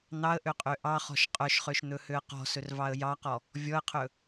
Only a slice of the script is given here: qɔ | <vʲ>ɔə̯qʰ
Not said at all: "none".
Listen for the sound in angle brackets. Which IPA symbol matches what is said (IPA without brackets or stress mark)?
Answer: vʲ